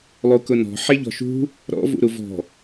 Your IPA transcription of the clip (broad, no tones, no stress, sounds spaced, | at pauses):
lˠ u k ʊ n ɔ̤ ħ e ʎ ɔ̤ ʃ ṳ | ɾ ɔ̰ v ṵ ɾ u v ɔ̤